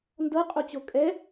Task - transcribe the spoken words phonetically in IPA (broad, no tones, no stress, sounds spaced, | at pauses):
n d ɤ qʼ o t͡ɕ o kʼ ɛ